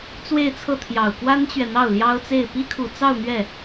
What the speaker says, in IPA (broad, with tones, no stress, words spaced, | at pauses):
t͡swe˥˧ɪ̯t͡sʰɤ˥˩ t̪ʰjɑ˨˩ʊ̯kwa˥nt͡ɕɥɛ˨ n̪ɑ˥˩ʊ̯ljɑ˥ʊ̯t͡se˥˩ɪ̯ pi˥kʰu˨˩t͡sɑ˥˧ʊ̯ n̪ɥɛ˥˩